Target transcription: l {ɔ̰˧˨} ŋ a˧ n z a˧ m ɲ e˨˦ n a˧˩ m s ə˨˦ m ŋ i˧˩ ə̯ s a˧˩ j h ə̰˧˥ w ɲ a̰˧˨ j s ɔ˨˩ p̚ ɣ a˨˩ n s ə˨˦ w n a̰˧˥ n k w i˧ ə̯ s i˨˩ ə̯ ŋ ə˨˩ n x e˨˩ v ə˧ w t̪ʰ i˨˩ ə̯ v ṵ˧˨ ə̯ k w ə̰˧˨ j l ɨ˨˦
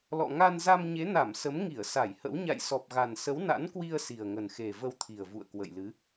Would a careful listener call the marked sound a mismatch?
no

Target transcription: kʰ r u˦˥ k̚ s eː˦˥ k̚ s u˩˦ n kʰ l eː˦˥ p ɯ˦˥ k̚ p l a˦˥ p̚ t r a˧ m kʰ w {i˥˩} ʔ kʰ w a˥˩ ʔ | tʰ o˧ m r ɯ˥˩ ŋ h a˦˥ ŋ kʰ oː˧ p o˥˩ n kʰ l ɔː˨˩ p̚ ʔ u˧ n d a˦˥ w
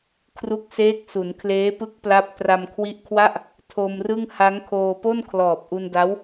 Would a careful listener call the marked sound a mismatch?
yes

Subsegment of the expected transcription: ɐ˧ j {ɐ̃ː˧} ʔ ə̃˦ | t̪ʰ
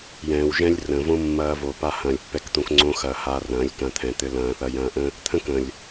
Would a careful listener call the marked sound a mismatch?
no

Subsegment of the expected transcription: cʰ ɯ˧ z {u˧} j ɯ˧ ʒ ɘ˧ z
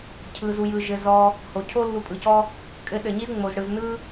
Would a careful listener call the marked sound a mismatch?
no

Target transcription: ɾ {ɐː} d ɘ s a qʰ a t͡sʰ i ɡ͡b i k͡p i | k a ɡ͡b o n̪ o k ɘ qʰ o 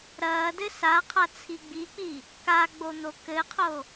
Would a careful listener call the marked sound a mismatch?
no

